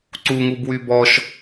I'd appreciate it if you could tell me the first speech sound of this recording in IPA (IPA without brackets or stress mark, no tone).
ǀ